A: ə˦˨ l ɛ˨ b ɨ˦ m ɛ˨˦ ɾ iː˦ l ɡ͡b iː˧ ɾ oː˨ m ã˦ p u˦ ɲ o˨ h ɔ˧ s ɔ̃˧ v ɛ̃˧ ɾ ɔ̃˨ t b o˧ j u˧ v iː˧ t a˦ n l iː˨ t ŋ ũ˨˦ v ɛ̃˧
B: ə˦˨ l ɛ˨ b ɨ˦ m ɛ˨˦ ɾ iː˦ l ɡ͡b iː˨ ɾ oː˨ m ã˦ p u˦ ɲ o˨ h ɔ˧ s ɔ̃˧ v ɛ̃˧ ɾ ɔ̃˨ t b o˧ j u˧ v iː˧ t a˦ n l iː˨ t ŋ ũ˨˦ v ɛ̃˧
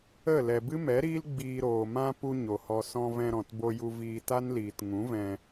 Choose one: A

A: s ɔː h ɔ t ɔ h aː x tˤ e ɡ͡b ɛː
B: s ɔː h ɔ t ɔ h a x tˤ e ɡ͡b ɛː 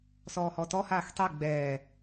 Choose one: A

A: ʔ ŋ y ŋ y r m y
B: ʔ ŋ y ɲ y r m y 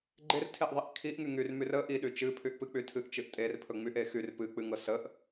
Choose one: A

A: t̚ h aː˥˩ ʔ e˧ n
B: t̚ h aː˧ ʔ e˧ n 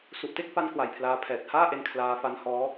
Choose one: A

